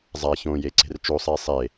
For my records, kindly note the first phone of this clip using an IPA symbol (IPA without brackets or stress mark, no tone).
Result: zˤ